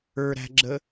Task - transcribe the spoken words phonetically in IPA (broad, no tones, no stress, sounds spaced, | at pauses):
ə˞ ɾ æ̤ ɡ͡ǁ ə